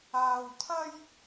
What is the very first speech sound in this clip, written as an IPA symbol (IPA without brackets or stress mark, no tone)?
aː